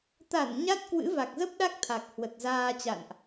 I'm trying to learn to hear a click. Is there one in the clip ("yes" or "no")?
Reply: no